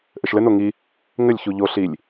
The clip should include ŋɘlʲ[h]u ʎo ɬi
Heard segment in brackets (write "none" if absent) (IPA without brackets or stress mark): ç